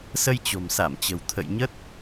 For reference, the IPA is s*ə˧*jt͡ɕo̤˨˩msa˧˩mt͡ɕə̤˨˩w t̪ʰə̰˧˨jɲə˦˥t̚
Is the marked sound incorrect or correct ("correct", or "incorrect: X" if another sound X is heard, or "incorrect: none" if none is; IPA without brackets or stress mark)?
correct